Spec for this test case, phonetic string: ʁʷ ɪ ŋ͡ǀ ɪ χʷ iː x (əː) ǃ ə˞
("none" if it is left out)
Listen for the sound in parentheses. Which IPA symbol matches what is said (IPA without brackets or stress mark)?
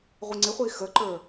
əː